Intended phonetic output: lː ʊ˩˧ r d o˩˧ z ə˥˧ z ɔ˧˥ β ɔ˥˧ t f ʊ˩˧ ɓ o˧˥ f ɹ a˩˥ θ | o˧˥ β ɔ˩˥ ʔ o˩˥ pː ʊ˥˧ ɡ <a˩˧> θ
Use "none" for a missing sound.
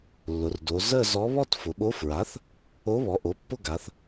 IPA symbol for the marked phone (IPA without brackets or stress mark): a˩˧